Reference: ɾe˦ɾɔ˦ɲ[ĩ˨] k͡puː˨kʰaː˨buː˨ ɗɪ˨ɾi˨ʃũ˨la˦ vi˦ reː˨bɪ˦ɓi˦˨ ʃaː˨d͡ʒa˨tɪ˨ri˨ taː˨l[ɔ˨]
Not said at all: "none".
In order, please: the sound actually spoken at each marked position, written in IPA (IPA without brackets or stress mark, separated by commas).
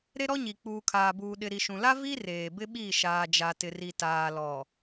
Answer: i˨, ɔ˨